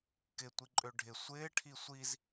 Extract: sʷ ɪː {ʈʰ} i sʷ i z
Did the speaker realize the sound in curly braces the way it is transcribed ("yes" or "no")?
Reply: yes